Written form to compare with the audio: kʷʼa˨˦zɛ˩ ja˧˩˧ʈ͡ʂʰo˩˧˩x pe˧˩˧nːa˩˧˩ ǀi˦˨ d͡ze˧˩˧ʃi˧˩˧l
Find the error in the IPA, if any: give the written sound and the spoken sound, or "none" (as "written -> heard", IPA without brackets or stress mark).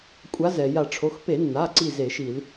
d͡z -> z